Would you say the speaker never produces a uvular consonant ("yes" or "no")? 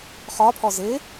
no